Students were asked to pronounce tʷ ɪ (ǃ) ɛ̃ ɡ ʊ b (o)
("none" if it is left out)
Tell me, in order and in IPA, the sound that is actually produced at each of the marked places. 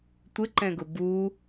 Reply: ǃ, u

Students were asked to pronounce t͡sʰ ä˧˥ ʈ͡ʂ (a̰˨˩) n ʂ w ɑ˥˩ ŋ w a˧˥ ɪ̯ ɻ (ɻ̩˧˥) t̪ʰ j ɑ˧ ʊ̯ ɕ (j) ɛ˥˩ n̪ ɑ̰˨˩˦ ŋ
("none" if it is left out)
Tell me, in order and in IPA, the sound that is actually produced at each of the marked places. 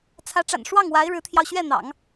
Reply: a̰˨˩, ɻ̩˧˥, ɥ

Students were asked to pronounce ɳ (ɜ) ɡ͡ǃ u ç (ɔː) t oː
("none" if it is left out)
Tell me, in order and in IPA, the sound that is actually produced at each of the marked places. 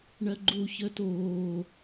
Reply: ɜ, əː

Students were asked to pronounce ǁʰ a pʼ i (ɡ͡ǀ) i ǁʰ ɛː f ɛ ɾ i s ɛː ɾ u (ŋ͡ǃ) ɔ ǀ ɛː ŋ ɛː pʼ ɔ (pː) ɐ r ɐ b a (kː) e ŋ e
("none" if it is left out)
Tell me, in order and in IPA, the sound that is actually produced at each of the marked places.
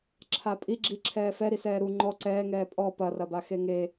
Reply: ɡ͡ǁ, ŋ͡ǃ, p, x

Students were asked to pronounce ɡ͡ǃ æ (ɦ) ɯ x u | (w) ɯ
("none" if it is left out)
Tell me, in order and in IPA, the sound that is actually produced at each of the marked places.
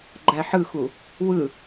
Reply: ħ, w

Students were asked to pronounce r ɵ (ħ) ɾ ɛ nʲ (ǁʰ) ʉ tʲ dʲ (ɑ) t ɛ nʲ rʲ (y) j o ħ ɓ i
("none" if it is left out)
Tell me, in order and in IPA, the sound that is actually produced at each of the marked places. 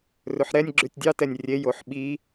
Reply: ħ, ɡ͡ǁ, ɑ, e

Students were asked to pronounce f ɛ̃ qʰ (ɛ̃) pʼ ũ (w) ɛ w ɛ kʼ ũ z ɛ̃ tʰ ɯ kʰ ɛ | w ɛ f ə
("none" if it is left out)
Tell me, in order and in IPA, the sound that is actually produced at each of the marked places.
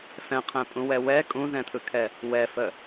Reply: ɛ̃, w

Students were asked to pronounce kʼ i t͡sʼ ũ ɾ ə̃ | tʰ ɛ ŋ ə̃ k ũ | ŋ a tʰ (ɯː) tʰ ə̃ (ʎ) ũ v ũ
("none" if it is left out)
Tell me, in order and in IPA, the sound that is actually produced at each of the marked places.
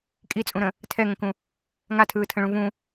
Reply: ɯː, ɭ

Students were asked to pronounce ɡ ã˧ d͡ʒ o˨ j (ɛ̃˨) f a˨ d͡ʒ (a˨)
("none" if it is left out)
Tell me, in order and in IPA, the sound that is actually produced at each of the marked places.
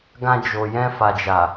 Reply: ɛ̃˧, a˨

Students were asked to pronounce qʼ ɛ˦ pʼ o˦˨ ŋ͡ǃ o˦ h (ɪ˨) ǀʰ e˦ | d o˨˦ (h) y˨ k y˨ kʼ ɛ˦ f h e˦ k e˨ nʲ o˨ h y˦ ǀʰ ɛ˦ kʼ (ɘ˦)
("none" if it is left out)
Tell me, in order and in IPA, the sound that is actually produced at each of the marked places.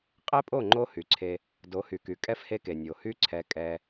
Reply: y˨, h, ɛ˦

